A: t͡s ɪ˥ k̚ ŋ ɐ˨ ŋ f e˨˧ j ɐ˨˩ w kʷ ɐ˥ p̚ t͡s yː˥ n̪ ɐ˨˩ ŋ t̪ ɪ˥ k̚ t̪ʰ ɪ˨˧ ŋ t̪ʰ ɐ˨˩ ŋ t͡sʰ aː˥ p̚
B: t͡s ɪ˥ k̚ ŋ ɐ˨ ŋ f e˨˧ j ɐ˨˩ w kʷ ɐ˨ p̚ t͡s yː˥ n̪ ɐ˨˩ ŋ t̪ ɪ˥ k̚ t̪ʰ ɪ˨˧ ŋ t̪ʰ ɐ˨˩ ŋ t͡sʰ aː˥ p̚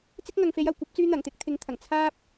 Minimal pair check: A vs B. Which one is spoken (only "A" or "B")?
A